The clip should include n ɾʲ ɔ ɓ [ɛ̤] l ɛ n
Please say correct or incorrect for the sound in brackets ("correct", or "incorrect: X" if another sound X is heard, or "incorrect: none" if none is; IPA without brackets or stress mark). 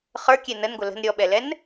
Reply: incorrect: ɛ